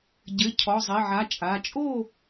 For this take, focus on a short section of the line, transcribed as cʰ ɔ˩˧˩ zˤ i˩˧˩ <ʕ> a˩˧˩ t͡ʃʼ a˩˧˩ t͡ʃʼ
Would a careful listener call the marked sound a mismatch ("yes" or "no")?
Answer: no